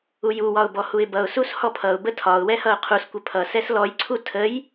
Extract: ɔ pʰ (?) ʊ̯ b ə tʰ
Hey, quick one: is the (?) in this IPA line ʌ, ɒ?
ʌ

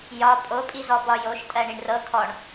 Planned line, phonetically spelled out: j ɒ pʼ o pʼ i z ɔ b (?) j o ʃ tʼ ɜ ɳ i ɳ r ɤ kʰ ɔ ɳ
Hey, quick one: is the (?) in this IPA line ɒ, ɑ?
ɒ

